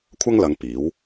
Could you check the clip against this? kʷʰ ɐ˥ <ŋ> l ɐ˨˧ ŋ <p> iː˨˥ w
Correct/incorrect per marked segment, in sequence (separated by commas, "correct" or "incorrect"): correct, correct